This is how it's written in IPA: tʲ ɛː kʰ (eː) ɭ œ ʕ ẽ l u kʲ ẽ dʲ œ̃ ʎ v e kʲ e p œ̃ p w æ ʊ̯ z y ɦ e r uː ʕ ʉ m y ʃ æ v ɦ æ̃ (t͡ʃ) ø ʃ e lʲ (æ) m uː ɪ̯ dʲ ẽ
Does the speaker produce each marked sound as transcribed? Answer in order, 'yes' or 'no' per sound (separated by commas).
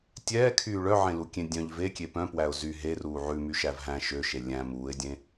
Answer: no, no, no